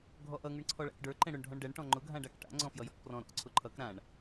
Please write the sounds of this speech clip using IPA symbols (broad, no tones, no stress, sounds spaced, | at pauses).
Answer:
ɡʱ ɔ ʔ ʌ ŋ ʊ ɳ ǀʰ ɔ ɭ a̰ k ɖ ə˞ ǃ ɛ̃ ɽ ʊ ɳ ɖʱ ɔ̃ ɳ ɖ ɛ ɳ ʈ ɔ̃ ŋ͡ǃ ʊ ɡʱ ã ɖ a k ʈ a̰ ŋ͡ǀ ɔ̃ f j ʌ j ɔ̰ k p r ɔ̃ ɾ ɔ̰ ǀʰ ʊ ǃʰ ʌ k ɾ ã ɳ